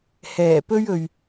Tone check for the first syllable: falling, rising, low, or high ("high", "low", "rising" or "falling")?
low